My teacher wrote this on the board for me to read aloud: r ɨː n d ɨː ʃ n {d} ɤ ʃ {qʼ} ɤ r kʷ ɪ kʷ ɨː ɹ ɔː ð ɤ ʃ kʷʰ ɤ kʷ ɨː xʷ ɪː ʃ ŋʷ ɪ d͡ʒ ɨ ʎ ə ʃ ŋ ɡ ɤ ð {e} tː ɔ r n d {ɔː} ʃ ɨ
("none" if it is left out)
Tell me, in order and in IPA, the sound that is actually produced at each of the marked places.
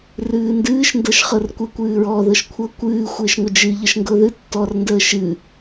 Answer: d, χ, ɨ, əː

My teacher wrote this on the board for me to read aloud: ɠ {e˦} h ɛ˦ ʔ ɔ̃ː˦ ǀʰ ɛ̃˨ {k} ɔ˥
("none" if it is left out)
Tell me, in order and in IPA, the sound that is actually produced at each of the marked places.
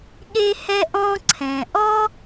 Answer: e˦, ʔ

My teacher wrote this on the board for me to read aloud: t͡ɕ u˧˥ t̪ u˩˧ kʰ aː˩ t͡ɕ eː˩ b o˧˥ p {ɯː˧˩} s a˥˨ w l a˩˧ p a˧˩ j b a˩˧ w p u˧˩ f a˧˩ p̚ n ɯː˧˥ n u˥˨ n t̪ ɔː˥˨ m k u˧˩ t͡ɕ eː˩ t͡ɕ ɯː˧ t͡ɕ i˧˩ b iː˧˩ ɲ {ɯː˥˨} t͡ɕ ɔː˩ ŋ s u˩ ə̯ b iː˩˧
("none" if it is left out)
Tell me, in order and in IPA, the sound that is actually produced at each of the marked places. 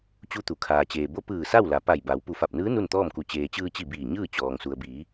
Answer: ɯː˧˩, ɯː˥˨

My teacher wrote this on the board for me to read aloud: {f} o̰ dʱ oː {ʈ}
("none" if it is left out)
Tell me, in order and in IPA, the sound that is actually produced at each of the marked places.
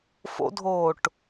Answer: f, ʈ

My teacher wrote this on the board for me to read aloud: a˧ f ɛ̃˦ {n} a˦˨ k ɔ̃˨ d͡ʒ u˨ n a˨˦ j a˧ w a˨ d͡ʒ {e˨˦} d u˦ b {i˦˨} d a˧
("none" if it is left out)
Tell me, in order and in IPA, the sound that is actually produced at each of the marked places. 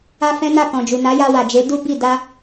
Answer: n, e˨˦, i˦˨

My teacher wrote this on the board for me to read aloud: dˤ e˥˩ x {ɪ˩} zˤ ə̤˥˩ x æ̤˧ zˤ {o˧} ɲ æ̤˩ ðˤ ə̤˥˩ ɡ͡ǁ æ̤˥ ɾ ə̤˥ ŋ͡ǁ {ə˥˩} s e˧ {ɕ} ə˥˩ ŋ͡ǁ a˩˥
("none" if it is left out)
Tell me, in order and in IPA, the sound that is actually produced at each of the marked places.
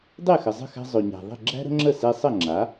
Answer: ə˩, o˩, ə˥˩, sˤ

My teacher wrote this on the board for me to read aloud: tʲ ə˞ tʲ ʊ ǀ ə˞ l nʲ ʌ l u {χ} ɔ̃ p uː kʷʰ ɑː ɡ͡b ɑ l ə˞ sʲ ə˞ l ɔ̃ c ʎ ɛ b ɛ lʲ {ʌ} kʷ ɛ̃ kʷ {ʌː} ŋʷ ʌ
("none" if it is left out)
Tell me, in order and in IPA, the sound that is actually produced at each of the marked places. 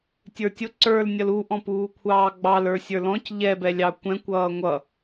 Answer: ʔ, ɑ, ʌː

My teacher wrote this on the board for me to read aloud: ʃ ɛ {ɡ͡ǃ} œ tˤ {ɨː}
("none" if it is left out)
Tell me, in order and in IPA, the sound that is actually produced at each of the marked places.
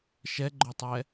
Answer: ɡ͡ǃ, ɛː

